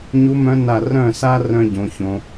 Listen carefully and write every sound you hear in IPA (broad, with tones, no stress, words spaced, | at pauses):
ɲu˧˥mœ̃˧˥na˧˩ rœ̃˥˩sa˥ rœ̃˥ɟõ˩˧çõ˩˧